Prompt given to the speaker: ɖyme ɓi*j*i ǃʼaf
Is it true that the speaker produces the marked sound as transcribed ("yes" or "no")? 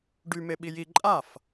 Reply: yes